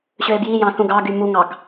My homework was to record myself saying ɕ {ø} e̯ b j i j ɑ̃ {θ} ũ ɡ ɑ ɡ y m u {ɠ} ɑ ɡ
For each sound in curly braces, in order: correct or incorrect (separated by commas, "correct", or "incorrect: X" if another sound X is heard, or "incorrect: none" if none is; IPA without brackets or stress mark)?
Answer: correct, correct, incorrect: ŋ